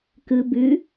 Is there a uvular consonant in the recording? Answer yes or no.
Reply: no